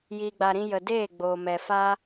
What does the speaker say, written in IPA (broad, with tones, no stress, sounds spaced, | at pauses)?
j iː˨ ɡ͡b a˨ ɾ ĩ˧ j ə˨ d eː˦˨ ɡ͡b oː˨ m ɛ˨ f aː˦